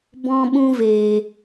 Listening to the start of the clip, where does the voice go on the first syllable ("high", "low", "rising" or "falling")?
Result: high